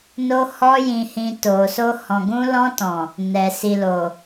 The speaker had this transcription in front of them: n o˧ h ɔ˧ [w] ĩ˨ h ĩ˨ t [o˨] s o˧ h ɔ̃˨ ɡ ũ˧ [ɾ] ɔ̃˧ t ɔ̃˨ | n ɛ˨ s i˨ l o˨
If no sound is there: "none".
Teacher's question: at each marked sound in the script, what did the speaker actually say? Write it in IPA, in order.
j, o˨, l

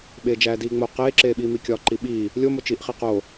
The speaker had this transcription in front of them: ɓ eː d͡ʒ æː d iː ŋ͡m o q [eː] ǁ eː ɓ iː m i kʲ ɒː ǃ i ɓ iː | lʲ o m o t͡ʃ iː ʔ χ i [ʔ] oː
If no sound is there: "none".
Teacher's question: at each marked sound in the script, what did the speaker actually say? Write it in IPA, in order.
eː, q

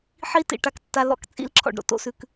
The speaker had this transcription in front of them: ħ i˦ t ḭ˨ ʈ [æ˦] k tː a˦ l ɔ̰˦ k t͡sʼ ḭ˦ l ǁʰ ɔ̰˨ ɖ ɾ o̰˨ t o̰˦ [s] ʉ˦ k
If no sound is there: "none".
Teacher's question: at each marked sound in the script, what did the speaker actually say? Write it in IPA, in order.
a˦, s

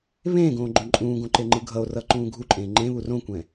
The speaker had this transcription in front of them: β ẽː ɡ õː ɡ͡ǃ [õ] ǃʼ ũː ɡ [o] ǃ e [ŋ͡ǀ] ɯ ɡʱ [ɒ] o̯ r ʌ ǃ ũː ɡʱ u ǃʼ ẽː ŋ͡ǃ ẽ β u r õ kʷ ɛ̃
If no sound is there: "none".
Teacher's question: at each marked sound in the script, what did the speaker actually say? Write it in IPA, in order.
õ, õ, ŋ͡ǃ, ʌ

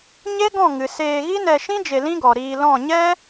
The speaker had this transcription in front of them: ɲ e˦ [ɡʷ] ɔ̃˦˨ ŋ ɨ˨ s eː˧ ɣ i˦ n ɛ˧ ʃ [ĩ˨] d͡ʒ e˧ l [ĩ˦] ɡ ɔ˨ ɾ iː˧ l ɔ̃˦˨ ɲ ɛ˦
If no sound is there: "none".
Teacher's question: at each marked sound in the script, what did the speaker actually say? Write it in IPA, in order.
ɡ, ĩ˦, ĩ˦

